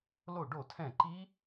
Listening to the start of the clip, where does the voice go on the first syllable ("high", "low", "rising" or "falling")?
falling